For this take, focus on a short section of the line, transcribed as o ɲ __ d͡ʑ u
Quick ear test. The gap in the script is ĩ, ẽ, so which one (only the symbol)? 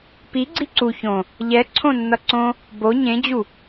ẽ